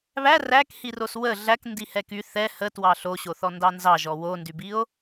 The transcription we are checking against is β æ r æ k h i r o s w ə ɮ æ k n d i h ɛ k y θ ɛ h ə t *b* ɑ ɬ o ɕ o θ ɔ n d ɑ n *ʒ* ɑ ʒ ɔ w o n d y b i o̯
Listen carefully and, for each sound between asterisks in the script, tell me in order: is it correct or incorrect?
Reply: incorrect, incorrect

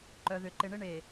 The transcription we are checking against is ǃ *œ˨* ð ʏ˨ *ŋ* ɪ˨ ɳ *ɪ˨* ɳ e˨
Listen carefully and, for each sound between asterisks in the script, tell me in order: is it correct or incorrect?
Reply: correct, incorrect, incorrect

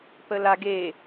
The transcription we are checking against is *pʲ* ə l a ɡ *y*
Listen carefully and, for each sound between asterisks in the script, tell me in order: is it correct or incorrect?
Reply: incorrect, incorrect

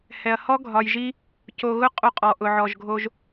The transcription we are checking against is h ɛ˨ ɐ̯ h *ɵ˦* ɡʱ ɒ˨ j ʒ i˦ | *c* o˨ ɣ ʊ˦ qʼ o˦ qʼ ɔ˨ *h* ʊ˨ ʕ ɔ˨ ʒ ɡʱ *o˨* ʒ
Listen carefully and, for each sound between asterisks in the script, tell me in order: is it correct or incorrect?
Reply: incorrect, correct, incorrect, incorrect

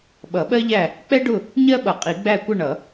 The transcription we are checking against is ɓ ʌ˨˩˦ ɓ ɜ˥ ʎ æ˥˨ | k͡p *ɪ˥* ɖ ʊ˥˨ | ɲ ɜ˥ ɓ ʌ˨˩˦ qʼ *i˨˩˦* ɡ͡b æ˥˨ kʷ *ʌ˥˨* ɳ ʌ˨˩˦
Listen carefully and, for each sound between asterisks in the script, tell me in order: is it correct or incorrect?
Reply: incorrect, correct, correct

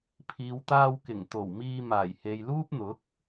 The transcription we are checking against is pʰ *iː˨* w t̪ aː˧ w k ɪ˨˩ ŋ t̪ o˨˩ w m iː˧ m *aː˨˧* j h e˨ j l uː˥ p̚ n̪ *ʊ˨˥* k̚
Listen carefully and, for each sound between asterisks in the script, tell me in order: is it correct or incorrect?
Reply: correct, incorrect, correct

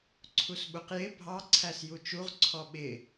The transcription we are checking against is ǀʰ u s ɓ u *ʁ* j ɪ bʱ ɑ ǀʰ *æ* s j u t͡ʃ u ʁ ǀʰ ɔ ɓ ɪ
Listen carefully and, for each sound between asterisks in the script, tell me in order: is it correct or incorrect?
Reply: incorrect, correct

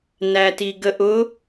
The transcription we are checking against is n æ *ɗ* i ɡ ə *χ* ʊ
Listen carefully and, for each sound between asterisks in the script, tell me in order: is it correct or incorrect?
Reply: incorrect, incorrect

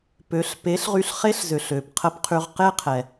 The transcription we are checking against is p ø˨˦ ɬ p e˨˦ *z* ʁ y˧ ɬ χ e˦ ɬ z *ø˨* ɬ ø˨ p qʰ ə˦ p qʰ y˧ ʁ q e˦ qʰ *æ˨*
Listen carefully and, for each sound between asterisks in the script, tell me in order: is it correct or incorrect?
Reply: incorrect, correct, incorrect

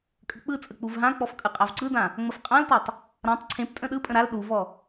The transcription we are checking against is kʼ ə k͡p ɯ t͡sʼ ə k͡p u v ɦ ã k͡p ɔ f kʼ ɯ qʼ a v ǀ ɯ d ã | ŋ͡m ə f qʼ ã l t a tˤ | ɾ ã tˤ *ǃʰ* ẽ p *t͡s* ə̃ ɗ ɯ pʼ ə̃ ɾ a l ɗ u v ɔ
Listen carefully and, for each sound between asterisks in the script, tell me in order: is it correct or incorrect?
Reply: incorrect, incorrect

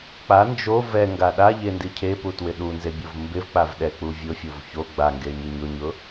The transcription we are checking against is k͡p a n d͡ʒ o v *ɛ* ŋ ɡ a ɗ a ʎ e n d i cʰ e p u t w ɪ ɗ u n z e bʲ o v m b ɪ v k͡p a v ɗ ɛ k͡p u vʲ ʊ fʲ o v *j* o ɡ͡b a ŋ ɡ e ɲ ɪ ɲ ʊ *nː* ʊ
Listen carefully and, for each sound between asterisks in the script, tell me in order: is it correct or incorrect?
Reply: correct, incorrect, incorrect

